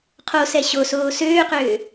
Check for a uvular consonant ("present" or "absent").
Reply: present